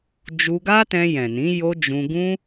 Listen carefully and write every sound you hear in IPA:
d͡ʒ u˧ ɡ a˦ t ɛ̃˧ j ɛ̃˨ n ĩ˨˦ j o˦ d͡ʒ ũ˧ ɡ ũ˦

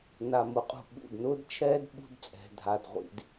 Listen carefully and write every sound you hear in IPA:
n a˨ m ʊ˨˦ qʼ ṳ˨ ɓ ṵ˦˨ d n ʊː˦ d t͡ʃʰ ɛː˦ d ɓ ṳ˦ d t͡sʼ ɛ̤˨ dʱ a˨ d ʁʷ ḭ˨ d

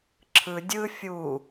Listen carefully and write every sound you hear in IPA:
ǁʰ ɯ dʲ ɯ fʲ u

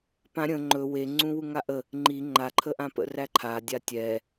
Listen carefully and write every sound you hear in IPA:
p ã ɾʲ ə̃ ŋ͡ǃ ɵ w e ŋ͡ǀ ũ w u ŋ a ʔ ə | ŋ͡ǃ i ŋ͡ǃ a ǃʰ ə ʔ ã p ə̰ r æ ǃʰ a dʲ a tʲ ɛ

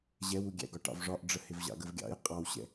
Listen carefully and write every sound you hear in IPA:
ʑ ɛ w u ɡʲ æ̰ ɡ ɒ ʈ ɑ̰ v ʐ ɒ ʔ ɖ͡ʐ ə h ɪ v ʑ ɑ̰ ɡ ə v ɡʲ ɑ̰ j qʼ ɑ w ɕ ɛ̰

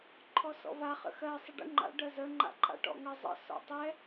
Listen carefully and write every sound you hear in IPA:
ǃʰ ɔ s ɔ̰ v a χ ə̰ x ɜ sˤ ə ɖ ə̰ ŋ͡ǃ a̰ ɖ ɜ z ə ŋ͡ǃ a̰ ǃʼ a̰ ʈ ɔ̰ ŋ ə zˤ ə̰ s ɔ̰ tˤ ɛ

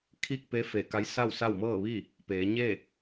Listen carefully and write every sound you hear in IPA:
kʰ i˥˨ k̚ p e˧˥ f e˧˩ k a˧˥ j s a˥˨ w s a˥˨ w m ɤː˥˨ ʋ i˥˨ | p eː˩˧ ɲ e˥˨

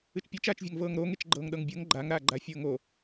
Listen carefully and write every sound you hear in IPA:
ɨ t͡ʃ pʲ e t͡ʃ aː t͡ʃ vʲ a ŋ v ɤː ŋ ɾ o ŋ e t͡ʃ ɡ͡ǃ ɤː ŋ ɗ ɤ ŋ bʲ ɤ ŋ ɡ͡ǃ a ŋ ɾ aː ɡ͡ǃ a fʲ ɤː ŋ o

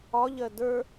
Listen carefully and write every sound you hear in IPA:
ɒ ʎ ɜ d ə˞

